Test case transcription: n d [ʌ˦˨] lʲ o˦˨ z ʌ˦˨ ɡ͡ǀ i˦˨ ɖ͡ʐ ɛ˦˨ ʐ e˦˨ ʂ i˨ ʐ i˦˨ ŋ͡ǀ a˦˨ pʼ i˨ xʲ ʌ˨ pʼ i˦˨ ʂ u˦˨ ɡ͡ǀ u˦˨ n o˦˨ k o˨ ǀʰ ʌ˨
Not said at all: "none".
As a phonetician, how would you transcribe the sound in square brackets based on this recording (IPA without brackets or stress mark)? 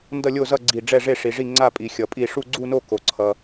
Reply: ʌ˦˨